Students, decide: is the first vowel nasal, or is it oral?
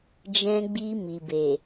nasal